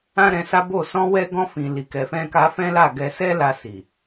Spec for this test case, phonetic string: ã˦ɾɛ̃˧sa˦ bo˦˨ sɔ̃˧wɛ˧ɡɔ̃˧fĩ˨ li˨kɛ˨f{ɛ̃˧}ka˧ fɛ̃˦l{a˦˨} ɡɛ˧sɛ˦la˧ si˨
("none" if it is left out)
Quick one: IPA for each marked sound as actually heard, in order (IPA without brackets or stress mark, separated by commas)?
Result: ɛ̃˧, a˦˨